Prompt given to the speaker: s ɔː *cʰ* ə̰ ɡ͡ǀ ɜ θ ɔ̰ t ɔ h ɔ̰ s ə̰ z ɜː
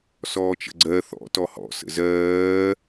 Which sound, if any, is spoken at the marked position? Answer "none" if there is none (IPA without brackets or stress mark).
t͡ʃ